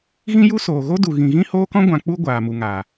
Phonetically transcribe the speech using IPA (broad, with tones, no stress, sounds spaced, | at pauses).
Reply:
ɣ ĩ˦ j u˦ s oː˨ ɣ o˦ d u˨ ɣ ĩ˨ ɣ ĩ˦ h oː˦ k ɔ̃˦ ɡʷ ã˨ k͡p u˧ ɡʷ aː˨ m u˨ ŋ aː˨